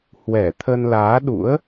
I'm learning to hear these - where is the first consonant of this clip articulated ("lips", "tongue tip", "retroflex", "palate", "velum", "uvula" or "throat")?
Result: throat